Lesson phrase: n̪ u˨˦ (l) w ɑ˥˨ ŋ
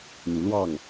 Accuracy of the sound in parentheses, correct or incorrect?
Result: correct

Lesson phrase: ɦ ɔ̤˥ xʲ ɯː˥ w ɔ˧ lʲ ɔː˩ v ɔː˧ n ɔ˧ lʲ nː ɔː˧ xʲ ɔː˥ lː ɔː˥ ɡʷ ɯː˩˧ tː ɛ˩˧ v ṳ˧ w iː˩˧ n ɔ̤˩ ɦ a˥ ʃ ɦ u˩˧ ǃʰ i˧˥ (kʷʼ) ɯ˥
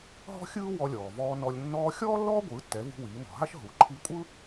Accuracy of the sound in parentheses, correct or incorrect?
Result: correct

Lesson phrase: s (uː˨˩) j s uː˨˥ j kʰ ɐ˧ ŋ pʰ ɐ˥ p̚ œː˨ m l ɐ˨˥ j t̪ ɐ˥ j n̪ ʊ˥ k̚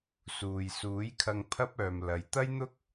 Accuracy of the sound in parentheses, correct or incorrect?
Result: incorrect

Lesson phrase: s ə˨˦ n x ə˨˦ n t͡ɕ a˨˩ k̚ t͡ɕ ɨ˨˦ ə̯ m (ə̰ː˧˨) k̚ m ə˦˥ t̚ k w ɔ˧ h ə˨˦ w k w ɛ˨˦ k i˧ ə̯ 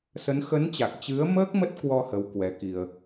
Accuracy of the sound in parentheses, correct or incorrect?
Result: incorrect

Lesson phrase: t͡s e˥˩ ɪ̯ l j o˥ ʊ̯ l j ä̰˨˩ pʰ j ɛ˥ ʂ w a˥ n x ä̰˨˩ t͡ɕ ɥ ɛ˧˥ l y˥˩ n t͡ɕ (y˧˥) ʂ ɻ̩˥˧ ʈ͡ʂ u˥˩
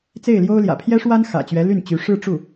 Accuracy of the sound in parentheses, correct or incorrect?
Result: correct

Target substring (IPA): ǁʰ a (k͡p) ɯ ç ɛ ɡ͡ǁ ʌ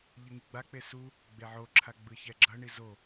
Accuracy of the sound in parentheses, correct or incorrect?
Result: incorrect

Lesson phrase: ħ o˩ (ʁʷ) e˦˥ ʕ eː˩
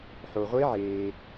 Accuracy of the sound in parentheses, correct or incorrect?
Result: correct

